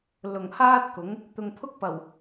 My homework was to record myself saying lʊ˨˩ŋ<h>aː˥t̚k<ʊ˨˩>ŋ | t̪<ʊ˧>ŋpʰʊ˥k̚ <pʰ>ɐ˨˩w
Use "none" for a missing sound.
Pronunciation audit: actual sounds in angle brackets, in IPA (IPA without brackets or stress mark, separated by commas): h, ʊ˨˥, ʊ˨, p